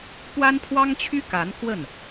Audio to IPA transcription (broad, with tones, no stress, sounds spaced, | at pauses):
p w a˥ n pʰ w ɑ˥ ŋ t͡ɕʰ y˥ k a˧˥ n k w ə˥˩ n